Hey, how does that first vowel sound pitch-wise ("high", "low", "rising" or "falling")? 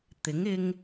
rising